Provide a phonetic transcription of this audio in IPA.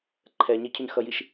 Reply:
ǃʰ ɛ ɲ e cʰ ʉ ɲ x ʌ j i ʃ

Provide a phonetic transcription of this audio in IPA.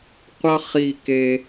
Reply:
qʷ ʌ˦ χ i˦˨ k e˦

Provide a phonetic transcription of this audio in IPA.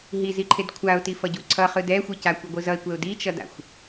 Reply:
ɦ i z i ǃʰ e d kʷʰ a ʊ̯ t i f ʌ ɟ u ǀʰ ʌ χ ɯ d ɛ xʷ i c a kʷ ɛ ɡʷ ɯ z ʌ ɪ̯ kʷ ɛ ʊ̯ d i t͡ʃ ʌ d a̰ xʷ

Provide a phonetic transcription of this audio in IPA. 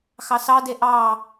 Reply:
x ɑ s ɑ d e ʔ ɑ

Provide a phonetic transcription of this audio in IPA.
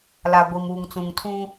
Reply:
l a˨ ɡʷ i˨ m uː˨ ŋ t͡s ũ˨ ŋ tʰ ũ˦

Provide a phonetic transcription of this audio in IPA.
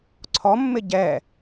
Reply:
ǀʰ ɔ mː ɪ ɟ ɛ

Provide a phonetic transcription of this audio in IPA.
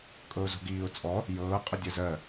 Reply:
kʼ ɤ ʊ̯ z o̤ ɡ iː ʊ̯ t͡sʼ ɔ | j ɤː qʼ ə dʲ ɜ z ɜ

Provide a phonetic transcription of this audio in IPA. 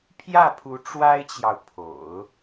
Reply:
pʰ j ä˥˩ pʰ u˧˥ ʈ͡ʂ w a˥ ɪ̯ t͡ɕ j ɑ˨ ʊ̯ pʰ o̰˨˩˦ ʊ̯

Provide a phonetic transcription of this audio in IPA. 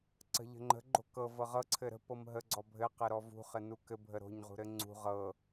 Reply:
ǀ ə̤ ʎ ə̤ ŋ͡ǃ ə̤ ɡ͡ǃ o̤ k ɤ v ɤ ʁ ɤ ǀʰ ɘ ɾ ə̤ p ɤ m ɦ ə ɡ͡ǀ ɔ bʱ ɘ q ɘ ɾ ɔ v ṳ χ ɘ n u k ɘ bʱ ə ɾ o̤ ɲ ʁ ṳ ɾ ɘ ŋ͡ǀ ṳ ʁ ɤ

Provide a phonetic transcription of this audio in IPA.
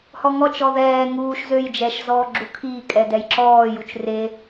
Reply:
h ɔ ŋ ɔ t͡ʃ ɔ ð ɛː ŋ uː ʃ z ø j d͡ʒ ɛ ʃ z ɔː ɡ͡ǁ u kʰ iː kʼ ɛ d ɛ j ǁ ɔː j u t͡ʃ r e

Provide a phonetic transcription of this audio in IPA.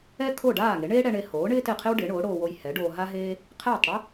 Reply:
ɛ˥ kʰ o˥˩ ɖ aː˥˩ ŋ e˩˥ ɳ eː˥ ɽ ɛ˧ ɳ e˧ h oː˩˥ ɳ ɪː˥ t ɪː˥˩ qʰ ɪ˥ w ɖ ɪː˩˥ ɳ oː˩˥ ɽ oː˧ w o˧ j h ɛ˩˥ ɖ oː˧ ɦ a˥ ɦ eː˥ | qʰ ɛː˥˩ tˤ ɽ ɪ˥

